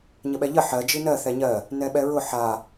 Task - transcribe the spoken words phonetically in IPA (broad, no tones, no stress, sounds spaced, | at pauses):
ɲ ə ɓ ɛ ʎ ə ħ ɜ d͡ʒ i n ɜ θ ɛ ɲ ɜ | n ɛ ɓ ɛ ɹ ʊ ħ a